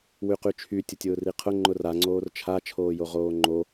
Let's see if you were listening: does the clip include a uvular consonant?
yes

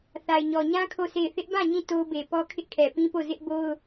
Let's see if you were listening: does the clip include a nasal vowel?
yes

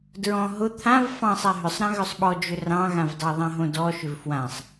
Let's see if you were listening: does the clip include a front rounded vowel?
yes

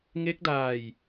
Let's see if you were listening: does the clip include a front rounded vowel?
no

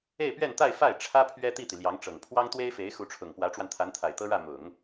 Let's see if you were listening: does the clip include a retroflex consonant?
yes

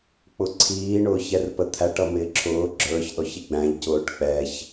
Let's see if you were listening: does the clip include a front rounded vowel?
no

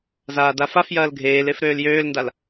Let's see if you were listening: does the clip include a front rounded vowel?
yes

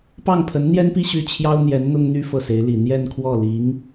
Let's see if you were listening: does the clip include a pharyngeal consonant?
no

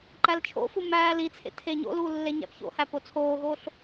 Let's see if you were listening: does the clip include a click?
yes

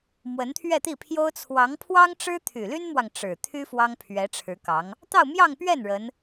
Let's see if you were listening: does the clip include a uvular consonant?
no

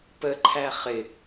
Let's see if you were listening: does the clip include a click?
yes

